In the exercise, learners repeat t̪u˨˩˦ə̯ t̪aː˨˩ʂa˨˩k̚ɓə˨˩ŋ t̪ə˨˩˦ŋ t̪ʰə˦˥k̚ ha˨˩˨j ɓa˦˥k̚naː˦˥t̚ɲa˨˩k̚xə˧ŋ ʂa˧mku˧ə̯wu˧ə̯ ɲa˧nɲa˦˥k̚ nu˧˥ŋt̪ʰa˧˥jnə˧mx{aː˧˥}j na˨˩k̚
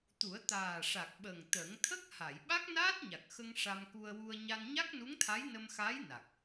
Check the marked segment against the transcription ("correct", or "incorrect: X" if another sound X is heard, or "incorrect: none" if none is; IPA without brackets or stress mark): correct